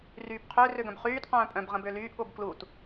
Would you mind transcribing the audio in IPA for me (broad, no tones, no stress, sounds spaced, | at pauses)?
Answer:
r yː b qʰ ø r ø ɡ œ̃ b χ yː t q œ̃ː pʼ œ̃ b ʁ ə̃ b øː l yː ʔ ɠ o b k l u t